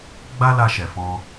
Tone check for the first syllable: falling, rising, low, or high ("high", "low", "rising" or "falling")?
high